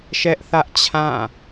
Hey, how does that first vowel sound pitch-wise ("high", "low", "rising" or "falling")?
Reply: high